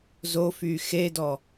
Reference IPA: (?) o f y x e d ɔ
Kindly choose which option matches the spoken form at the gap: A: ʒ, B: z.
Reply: B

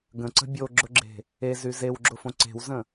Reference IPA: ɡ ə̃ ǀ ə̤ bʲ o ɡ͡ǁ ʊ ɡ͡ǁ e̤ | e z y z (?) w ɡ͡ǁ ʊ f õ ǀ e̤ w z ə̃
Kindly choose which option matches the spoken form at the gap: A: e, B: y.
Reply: A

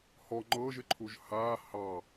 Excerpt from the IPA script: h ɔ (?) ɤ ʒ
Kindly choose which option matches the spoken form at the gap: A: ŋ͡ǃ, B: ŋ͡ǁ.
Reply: A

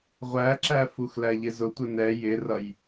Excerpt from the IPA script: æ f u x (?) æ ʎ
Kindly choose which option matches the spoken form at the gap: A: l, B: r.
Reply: A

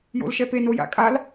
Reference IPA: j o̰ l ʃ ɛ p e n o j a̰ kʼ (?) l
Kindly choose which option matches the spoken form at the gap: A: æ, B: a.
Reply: B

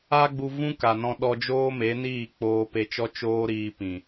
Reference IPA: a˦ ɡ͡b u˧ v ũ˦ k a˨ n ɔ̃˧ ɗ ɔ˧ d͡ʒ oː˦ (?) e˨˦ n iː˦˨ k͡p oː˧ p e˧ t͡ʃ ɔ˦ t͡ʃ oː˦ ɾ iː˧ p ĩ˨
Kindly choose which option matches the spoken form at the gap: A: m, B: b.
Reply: A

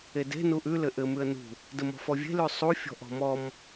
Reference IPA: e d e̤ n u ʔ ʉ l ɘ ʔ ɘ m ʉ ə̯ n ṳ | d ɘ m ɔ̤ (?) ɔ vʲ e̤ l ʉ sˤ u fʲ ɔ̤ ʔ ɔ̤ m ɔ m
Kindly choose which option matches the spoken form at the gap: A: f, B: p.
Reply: A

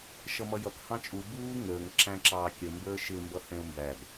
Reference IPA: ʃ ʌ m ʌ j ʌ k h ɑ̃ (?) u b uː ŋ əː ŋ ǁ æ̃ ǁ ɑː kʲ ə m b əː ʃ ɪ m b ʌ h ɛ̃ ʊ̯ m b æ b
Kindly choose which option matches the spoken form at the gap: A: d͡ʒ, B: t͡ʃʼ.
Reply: B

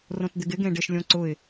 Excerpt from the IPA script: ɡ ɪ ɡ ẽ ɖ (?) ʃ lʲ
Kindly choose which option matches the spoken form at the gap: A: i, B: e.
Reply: B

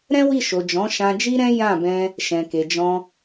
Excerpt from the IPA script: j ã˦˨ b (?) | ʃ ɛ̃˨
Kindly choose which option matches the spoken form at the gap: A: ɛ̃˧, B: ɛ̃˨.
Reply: A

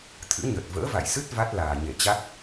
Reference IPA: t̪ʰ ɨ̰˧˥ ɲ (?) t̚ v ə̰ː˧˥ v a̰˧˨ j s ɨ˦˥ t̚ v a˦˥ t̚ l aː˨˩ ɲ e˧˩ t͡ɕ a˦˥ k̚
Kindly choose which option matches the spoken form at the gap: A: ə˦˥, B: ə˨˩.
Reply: B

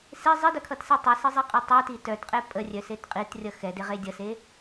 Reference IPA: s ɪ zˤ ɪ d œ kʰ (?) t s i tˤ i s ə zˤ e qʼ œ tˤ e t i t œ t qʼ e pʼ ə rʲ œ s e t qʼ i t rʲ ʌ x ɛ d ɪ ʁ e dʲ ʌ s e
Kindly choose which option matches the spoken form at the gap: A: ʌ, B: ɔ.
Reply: A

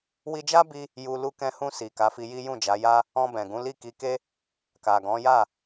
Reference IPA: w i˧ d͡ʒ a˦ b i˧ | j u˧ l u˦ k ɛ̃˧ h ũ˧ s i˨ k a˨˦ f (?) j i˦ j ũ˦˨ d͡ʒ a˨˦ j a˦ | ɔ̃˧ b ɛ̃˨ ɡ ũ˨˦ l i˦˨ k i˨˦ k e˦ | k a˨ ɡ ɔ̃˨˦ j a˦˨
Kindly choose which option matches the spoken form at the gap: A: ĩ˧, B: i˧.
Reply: B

